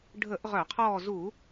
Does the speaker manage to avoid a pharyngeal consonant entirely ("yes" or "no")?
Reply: yes